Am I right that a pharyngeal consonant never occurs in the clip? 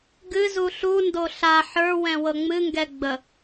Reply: no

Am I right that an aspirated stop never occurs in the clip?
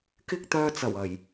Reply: yes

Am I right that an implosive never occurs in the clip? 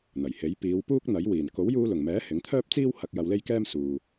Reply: yes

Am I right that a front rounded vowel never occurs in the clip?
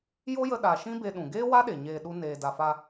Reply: yes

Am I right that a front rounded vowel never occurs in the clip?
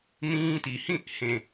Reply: yes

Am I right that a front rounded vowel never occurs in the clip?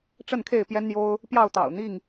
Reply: yes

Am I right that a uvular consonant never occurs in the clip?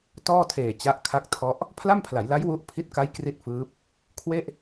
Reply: yes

